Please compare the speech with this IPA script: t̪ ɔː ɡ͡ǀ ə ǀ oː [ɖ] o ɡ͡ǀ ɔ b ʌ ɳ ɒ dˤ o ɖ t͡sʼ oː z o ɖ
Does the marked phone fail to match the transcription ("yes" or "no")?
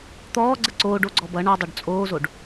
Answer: no